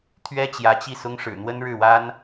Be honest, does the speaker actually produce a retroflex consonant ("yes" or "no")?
yes